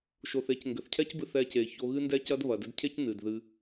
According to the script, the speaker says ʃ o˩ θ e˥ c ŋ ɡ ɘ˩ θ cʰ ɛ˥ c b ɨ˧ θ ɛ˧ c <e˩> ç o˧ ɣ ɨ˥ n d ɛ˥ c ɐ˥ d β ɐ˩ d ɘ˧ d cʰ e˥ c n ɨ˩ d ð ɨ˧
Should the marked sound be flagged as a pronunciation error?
no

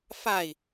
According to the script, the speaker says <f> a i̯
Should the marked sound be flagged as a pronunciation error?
no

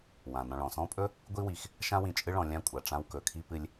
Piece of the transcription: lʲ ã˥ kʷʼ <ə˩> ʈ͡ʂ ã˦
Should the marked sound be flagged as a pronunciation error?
yes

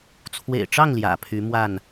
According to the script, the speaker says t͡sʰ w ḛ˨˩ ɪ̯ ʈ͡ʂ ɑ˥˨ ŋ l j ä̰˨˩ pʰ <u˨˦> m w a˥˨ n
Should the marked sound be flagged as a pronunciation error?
yes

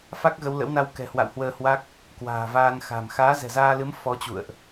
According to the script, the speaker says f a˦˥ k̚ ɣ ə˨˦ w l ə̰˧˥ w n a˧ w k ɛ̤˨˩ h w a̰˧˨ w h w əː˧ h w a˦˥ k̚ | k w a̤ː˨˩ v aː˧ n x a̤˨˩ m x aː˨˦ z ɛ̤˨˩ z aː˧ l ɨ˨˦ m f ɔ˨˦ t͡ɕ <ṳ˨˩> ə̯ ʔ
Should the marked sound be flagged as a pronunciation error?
yes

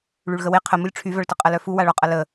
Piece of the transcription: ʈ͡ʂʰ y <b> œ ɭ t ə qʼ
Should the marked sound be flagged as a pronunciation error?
yes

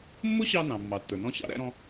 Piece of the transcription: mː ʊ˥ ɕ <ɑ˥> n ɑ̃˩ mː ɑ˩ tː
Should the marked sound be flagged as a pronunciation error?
yes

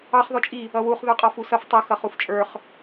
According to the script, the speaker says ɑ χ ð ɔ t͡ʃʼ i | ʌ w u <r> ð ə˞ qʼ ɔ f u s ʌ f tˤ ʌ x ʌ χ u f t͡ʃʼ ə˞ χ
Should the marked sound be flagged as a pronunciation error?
yes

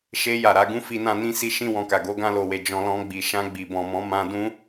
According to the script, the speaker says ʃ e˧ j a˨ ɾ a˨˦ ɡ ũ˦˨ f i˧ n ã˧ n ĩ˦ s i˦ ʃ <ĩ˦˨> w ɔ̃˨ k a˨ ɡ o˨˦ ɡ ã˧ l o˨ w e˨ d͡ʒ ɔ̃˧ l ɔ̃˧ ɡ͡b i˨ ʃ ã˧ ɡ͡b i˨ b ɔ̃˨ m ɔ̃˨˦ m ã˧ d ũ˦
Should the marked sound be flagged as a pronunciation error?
no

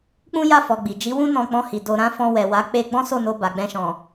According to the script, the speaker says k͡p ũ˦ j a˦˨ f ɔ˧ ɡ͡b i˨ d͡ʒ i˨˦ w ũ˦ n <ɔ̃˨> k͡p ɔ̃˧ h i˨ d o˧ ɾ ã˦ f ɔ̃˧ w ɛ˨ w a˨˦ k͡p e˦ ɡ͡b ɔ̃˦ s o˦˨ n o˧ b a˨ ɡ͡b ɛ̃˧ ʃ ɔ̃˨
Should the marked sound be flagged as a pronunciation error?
yes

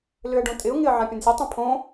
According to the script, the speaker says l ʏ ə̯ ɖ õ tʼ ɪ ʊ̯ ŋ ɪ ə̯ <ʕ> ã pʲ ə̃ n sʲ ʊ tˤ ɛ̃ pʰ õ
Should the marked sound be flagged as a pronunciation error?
no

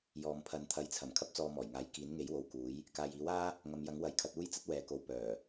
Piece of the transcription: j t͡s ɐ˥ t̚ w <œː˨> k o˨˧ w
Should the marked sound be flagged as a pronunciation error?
yes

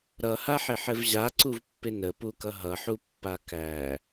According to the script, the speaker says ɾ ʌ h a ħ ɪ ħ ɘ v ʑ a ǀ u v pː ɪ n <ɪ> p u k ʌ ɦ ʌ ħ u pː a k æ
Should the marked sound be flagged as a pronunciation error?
yes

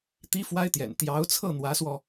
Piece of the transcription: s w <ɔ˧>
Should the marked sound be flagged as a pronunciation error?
no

